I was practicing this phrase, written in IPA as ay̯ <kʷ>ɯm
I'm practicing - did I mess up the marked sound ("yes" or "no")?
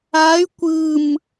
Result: no